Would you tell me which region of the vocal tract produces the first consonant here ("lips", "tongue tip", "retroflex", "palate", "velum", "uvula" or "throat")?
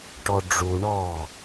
retroflex